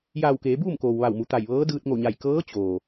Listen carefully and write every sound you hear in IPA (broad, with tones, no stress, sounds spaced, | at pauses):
j aː˧˩ w k eː˩˧ b uː˥˨ m k oː˩ w ʋ a˧˩ w m u˩˧ t̪ a˧˩ j ʋ ɤː˧˥ d ɯː˧ t̚ ŋ o˧˩ ɲ a˧˩ j k ɤː˧˥ t͡ɕ oː˩